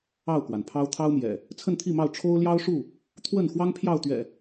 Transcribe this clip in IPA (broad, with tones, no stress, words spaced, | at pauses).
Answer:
ɑ˥˨ʊ̯kwa˩n pʰɑ˦ʊ̯ t̪ʰɑ˦ʊ̯mjɛ̰˨˩ | t͡sʰə˥˨nt̪ʰi˥˨mɑ˥˨ʊ̯ ʈ͡ʂʰo˦ʊ̯ljɑ˦ʊ̯ʂu˥˨ | t̪ʰwə˥˨nxwɑ˦ŋ pʰjɑ˥˨ʊ̯t̪ɥɛ̰˨˩